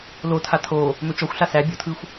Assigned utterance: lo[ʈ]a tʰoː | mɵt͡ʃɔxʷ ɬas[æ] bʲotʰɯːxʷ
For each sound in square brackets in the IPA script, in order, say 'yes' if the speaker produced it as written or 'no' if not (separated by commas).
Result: no, yes